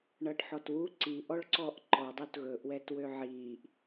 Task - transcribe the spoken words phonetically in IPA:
ɳʌːʈħɔtwu ǀiʔɔɭǀɔːʔ ǃɔdˤut ɣɵʔwɛtwø ʕiːʔ

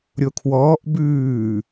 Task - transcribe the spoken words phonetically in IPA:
ɾʲokʰwɔːʔ bʉː

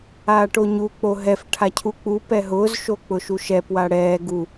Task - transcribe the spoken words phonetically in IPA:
aːʈoɲu k͡poɦɛf ʈʰacʰuk͡pu pɛɦʊːz ʃok͡pʊʃuʃɛ pwaɽɛː ɡu

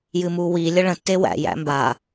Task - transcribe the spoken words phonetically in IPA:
jɨmuwi lʲəɭə̃ tːewæ̰ jæ̰mba

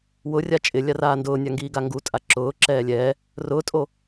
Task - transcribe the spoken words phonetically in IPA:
wʊrʲa t͡ʃʼɪlʲaraː ndʊːnʲaŋɡiːɡa ŋɡutʼa ǁʊːǁɛː lʲɛː | rʊːtʼo

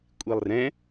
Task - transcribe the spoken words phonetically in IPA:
kʷʼilˠrɛ̃

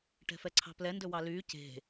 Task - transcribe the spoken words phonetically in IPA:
ʈɛ̤fɛǀʰɑ̤plɛ ndɵwɑlyː ce̤

